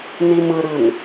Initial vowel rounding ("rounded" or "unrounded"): unrounded